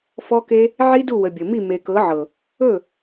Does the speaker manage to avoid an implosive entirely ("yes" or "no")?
yes